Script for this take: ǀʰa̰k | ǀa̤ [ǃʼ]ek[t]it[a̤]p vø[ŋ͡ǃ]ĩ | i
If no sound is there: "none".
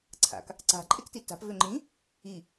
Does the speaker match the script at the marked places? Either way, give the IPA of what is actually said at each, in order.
ǃʼ, t, a̤, ŋ͡ǃ

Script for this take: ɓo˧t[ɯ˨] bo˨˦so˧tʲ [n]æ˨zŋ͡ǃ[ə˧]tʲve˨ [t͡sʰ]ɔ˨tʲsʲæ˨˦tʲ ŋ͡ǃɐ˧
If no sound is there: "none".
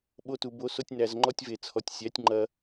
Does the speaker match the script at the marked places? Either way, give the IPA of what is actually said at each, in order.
u˨, n, ɔ˧, t͡sʰ

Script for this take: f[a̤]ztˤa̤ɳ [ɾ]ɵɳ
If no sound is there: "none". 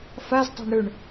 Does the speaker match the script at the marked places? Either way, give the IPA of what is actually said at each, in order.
a, ɾ

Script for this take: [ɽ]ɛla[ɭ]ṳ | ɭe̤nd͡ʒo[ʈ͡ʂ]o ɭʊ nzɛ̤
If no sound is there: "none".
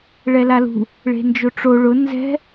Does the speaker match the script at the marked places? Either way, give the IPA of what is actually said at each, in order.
ɭ, l, ʈ͡ʂ

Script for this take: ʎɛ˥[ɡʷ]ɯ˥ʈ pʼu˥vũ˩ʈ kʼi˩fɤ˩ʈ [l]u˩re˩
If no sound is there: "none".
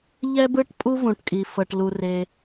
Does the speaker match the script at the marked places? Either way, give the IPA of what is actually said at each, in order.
b, l

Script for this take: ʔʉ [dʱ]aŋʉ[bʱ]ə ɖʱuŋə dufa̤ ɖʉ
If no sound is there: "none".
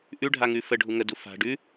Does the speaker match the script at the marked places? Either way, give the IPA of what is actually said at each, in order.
ɖʱ, f

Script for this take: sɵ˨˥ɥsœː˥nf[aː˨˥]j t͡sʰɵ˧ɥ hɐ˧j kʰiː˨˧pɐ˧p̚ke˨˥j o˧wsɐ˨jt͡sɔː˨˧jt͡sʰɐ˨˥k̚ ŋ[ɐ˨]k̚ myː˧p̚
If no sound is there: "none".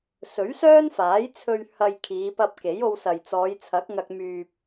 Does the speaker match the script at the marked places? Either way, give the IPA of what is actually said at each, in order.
aː˨˥, ɐ˧

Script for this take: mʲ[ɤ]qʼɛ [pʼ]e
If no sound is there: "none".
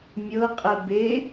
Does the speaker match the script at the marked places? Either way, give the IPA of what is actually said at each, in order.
ɤ, b

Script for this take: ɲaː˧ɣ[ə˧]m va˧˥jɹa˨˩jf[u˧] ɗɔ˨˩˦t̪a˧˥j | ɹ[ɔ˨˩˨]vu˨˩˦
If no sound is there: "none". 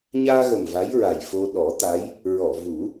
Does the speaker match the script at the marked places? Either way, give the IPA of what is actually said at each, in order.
ə˨˩, o˧, ɔ˨˩˨

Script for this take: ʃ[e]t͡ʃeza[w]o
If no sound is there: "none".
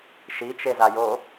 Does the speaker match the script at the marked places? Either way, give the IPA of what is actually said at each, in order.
i, j

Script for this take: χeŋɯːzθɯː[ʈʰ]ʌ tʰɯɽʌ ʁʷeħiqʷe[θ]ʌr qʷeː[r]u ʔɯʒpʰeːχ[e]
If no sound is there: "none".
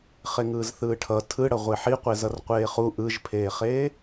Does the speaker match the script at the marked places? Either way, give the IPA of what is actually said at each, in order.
ʈʰ, z, χ, eː

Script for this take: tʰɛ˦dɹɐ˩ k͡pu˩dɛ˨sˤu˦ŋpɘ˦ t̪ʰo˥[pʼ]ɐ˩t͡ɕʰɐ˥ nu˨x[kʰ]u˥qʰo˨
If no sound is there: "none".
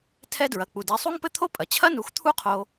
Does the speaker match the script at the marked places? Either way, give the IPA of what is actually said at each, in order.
pʼ, t̪ʰ

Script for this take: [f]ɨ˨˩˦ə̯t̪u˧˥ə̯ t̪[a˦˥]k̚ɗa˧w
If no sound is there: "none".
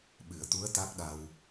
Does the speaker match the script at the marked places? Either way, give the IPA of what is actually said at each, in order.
ɓ, a˦˥

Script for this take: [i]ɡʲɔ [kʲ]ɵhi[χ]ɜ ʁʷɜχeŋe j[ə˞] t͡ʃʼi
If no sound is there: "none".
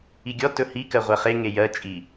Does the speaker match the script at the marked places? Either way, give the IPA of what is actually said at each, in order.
i, t, k, ɜ

